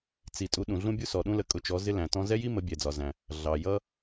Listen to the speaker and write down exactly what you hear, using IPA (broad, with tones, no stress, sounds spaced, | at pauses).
t͡s i˨ tʼ u˧˥ ɗ ũ˨ ɮ ũ˥ bʲ u˥ s ɔ˨ ɗ ũ˥ l ə˧˥ kʼ ʊ˧˥ t͡ʃ ɔ˧˥ z ɪ˥ l æ̃˨ t ɔ̃˥ z ɛ˥ j i˥ m ə˧˥ bʲ ɛ˨ d͡z ɒ˨ z æ̃˨ | ɮ ɑ˨ j ʌ˥